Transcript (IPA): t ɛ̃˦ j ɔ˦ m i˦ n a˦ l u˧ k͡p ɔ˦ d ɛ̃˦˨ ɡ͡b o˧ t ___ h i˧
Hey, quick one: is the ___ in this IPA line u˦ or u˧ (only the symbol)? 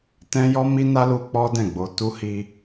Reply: u˧